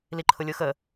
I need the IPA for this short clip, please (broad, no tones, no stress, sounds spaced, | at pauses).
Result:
l i ǃʰ ʊ lʲ ʊ x ə